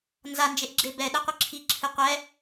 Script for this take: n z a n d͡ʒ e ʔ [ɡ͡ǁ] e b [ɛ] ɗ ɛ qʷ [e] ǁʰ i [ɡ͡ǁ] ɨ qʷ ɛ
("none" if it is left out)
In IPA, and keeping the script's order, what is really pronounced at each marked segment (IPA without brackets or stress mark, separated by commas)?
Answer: ɡ͡ǁ, ɛ, ɨ, ǁʰ